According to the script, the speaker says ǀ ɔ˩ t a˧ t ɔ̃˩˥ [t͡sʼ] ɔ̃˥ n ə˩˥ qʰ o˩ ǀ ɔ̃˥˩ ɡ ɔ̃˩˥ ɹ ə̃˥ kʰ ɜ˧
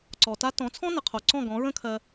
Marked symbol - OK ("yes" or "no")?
no